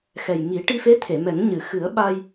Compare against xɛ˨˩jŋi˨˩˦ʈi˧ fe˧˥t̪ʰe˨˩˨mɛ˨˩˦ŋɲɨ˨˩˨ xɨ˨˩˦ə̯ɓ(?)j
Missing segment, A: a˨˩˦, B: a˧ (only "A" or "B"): B